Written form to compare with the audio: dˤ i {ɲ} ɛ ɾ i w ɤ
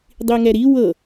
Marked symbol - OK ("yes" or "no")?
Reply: no